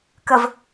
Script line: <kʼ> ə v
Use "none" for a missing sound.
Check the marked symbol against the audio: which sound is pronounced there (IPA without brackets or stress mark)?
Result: k